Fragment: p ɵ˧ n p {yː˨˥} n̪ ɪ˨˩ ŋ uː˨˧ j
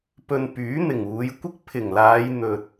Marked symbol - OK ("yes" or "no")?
yes